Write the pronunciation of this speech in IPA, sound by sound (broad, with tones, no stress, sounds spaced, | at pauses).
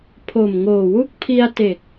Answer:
pʰ o˨˩ m ŋ oː˨˩ w u˥˩ k̚ pʰ i˧ a̯ t e˨˩ k̚